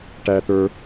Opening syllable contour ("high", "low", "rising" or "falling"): high